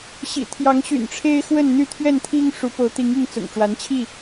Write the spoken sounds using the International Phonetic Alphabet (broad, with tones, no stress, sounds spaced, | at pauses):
ɕ ḭ˨˩ t̪ʰ j ɑ˨˦ ŋ ɕ y̰˨˩ n ʈ͡ʂʰ e˦ ɪ̯ x w ə˥˨ n n̪ y˥˨ t̪ʰ ɥ ɛ˥˨ n t̪ʰ i˦ ŋ ʂ u˨˦ p o˨˦ ʊ̯ t̪ i˨˦ ŋ i˥˨ ŋ t͡s ʊ̰˨˩ ŋ ʈ͡ʂ w a˨˦ n t͡ɕʰ i˥˨